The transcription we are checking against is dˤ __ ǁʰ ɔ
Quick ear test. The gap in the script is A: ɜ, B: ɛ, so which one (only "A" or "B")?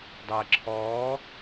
A